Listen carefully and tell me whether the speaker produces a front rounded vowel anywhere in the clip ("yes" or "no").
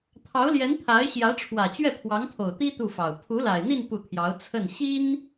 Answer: no